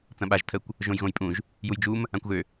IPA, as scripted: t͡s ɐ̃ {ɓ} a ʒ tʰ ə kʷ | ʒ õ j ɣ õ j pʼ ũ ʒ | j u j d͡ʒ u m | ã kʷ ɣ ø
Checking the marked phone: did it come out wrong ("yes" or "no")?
no